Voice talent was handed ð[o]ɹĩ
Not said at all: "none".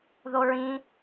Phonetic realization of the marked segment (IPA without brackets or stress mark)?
o